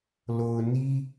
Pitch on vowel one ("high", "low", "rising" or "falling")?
low